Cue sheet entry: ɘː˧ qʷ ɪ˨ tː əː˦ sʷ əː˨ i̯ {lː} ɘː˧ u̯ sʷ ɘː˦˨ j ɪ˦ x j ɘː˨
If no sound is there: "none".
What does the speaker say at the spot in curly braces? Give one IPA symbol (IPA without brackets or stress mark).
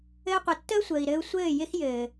ɾ